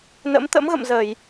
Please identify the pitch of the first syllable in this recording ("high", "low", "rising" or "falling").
rising